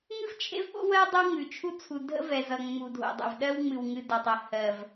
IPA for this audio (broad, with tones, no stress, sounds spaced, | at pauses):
ŋ ɨ˦ v t͡ʃʰ ḛ˦ v ɓ o̰˦ w ɜ˦ dˤ ə˦ w ŋ ʉ˨ t͡ʃʰ u˦ t͡sʰ u˨ dʱ ə̰˦ v ɛ˨ z ʌ˨ ŋ͡m u˨ dʱ o̰˨ dˤ ə̰˨ v ɗ ɜ˦ w ŋ͡m ɨ˨ w ŋ ɨ˨ d ʌ˨ tˤ ə˨ h ɜ˨ v